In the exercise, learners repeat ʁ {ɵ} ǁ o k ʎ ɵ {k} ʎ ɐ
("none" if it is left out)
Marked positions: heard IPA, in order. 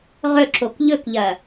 ɵ, k

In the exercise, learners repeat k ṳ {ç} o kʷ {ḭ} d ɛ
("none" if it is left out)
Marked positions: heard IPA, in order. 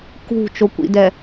t͡ʃ, ḭ

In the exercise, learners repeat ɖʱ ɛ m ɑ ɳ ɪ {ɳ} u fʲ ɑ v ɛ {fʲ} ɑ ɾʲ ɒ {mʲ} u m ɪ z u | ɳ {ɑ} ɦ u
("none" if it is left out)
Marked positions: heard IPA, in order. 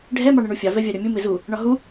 ɳ, vʲ, mʲ, ɒ

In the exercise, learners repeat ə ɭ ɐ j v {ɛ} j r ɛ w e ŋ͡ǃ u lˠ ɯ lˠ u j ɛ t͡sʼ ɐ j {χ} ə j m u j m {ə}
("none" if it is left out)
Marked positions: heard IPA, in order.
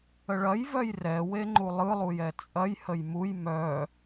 œ, h, œ

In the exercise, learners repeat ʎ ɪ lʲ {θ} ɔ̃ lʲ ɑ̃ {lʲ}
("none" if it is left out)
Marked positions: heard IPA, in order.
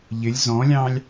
z, lʲ

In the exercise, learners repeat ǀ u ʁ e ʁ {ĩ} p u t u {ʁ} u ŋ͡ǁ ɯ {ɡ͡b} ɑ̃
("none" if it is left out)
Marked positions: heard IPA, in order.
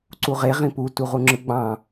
ĩ, ʁ, ɡ͡b

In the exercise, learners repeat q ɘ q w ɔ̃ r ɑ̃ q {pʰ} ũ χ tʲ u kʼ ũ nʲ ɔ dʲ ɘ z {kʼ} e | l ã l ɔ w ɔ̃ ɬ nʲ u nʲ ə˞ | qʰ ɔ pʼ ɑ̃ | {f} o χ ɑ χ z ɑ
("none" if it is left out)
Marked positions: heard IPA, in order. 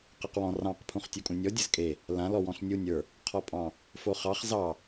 pʰ, kʼ, f

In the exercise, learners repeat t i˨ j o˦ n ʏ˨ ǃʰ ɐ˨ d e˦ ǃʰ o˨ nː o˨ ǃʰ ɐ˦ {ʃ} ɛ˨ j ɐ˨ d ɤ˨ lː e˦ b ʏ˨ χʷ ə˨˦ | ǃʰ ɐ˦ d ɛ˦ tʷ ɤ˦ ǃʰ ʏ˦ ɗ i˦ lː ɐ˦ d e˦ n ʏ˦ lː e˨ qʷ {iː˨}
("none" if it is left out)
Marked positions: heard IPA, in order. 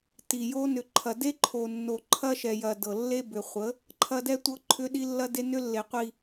ʃ, i˨

